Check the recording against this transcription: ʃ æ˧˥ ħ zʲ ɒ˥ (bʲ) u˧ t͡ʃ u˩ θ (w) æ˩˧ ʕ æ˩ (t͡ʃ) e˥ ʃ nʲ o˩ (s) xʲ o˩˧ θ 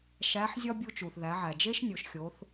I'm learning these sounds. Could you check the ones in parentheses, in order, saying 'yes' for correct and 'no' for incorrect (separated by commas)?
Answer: yes, no, no, no